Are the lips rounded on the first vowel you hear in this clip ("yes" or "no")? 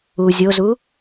yes